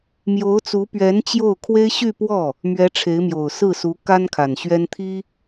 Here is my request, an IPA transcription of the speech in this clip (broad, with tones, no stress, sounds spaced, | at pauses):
m j o˧˥ ʊ̯ t͡s u˧˥ p ɥ ɛ˧˥ n t͡ɕ j o˥˩ ʊ̯ kʰ w e˥ ɪ̯ ɕ y˥˧ p w ɔ˥˩ | m ɥ ɛ˧˥ ʈ͡ʂʰ e˧˥ ɪ̯ m j o˨˩ ʊ̯ s ɹ̩˥˩ s u˧˥ k a˥ n kʰ a˨˩ n ɕ ɥ ɛ˥ n t̪ʰ i˥